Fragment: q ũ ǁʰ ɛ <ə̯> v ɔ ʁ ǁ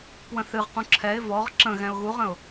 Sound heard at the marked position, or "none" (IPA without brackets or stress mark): ɪ̯